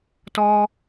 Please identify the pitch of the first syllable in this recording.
high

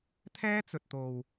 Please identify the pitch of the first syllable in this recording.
high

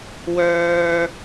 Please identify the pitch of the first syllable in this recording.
low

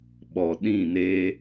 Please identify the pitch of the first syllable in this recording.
low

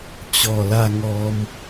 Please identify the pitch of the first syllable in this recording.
low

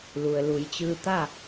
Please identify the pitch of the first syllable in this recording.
low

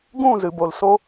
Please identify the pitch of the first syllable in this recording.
falling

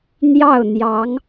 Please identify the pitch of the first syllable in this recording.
falling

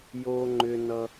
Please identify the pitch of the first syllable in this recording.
low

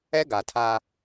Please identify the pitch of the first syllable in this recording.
high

